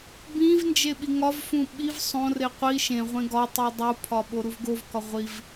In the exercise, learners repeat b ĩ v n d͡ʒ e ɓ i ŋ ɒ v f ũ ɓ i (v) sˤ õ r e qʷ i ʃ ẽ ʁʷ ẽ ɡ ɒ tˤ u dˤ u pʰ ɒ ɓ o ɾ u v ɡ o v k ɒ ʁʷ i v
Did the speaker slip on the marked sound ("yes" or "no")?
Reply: no